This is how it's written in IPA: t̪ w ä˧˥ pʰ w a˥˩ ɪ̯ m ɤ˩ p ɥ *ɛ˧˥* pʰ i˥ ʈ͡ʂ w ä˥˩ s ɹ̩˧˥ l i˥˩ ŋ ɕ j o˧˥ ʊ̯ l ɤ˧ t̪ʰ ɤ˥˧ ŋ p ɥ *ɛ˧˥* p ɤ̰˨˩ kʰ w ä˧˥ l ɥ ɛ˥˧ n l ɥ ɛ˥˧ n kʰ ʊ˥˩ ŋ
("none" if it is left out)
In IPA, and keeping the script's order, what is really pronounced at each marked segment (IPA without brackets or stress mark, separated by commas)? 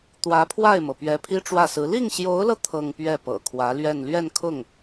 ɛ˧˥, ɛ˥˩